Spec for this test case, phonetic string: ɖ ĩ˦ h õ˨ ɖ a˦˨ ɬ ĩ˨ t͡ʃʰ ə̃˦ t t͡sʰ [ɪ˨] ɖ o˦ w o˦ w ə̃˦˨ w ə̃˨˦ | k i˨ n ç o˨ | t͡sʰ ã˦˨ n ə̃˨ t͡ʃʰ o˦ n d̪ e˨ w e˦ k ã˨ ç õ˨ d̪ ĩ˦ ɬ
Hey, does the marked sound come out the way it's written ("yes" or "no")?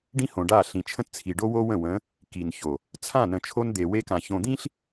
no